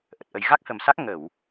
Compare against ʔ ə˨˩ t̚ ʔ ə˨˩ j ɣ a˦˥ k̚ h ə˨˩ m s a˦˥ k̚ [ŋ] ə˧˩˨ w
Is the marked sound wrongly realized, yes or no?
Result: no